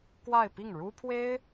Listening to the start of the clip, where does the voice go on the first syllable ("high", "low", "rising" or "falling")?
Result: falling